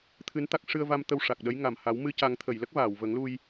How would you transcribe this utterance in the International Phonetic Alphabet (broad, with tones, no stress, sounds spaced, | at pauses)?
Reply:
t̪ʰ ɨ˧˥ n t̪ a˦˥ k̚ ʂ ɨ˧ ə̯ v a˧ m t̪ ə˧ w ʂ a˨˩ k̚ ɗ ə˧˥ j ŋ a˨˩ m h a˨˩˦ w m ɨ˧ c a˨˩˦ ŋ t̪ʰ ə˨˩˨ j l ə˦˥ k̚ v aː˨˩˨ w v ə˨˩˦ ŋ l u˧ j